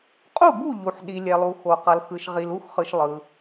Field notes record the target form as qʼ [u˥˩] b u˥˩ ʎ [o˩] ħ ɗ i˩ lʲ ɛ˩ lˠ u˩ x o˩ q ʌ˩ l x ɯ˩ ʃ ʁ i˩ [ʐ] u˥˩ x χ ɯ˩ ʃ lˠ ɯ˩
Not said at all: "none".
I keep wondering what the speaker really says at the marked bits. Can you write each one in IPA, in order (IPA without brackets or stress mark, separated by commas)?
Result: u˥˩, u˩, l